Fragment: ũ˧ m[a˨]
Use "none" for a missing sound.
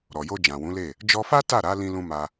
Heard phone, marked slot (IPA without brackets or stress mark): a˧